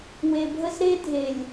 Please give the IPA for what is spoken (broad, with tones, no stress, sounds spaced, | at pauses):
w e˨ bʱ ə˦ z ɾ e˦ dʱ e˨ lʲ